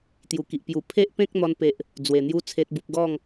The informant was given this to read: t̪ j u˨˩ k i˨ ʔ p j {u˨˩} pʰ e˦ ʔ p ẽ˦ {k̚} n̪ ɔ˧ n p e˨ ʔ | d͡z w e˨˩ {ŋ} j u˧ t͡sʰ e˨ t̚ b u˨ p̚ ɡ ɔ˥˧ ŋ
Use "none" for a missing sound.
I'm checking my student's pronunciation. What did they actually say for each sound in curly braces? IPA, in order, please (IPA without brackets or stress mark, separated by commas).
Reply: u˨˩, k̚, n̪